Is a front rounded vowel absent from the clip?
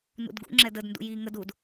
yes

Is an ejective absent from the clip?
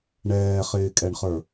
no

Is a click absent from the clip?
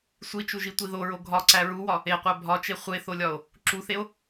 no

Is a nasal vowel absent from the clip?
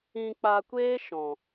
no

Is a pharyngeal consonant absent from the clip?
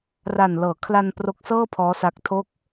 yes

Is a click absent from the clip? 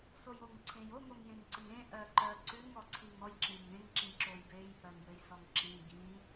no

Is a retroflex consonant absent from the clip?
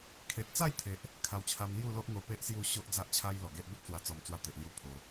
yes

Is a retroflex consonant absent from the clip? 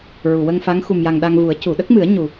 yes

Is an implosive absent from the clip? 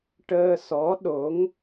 no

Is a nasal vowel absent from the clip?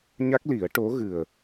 yes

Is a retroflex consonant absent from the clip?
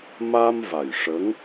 no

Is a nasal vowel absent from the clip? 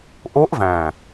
no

